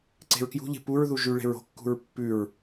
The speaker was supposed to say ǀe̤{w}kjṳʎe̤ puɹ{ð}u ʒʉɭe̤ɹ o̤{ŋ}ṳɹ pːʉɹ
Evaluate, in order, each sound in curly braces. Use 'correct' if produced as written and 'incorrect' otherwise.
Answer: incorrect: ɹ, correct, incorrect: kː

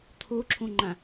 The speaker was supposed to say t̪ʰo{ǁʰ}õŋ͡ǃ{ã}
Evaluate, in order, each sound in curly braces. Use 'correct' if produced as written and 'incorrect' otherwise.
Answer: correct, correct

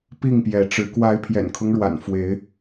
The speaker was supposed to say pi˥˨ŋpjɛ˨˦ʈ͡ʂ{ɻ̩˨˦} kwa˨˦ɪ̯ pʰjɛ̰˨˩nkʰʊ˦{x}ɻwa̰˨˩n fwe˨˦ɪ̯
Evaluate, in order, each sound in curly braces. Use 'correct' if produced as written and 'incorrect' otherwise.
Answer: correct, incorrect: ŋ

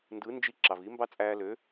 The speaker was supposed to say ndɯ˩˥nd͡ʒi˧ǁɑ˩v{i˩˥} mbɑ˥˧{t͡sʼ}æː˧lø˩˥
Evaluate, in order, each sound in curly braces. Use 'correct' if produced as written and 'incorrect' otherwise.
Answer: correct, correct

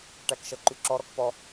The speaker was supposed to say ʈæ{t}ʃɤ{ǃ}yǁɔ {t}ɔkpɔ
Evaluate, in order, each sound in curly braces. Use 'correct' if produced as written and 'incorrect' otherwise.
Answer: incorrect: k, correct, incorrect: ɾ

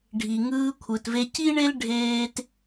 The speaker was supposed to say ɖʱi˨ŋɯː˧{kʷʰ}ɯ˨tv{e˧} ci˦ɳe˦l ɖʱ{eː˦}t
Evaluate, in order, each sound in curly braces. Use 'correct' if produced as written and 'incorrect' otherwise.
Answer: correct, correct, correct

